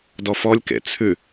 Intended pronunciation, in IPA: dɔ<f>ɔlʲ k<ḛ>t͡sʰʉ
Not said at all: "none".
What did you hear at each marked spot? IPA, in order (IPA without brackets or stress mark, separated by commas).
f, ḛ